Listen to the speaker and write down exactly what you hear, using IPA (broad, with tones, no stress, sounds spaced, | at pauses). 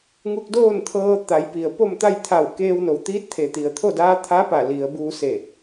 ŋ u˧ k̚ d oː˥˨ n t̪ʰ ɤː˧ t̪ a˩˧ j p i˩ ə̯ p o˥˨ m t̪ a˥˨ j t̪ʰ a˧˩ w k eː˧ w n o˩˧ w t̪ iː˧˥ t̚ t̪ʰ e˩ t̪ i˩ ə̯ t̪ʰ o˥˨ d aː˧˥ t̪ʰ a˧˥ p a˧˩ l i˩˧ ə̯ b uː˧ s e˧˩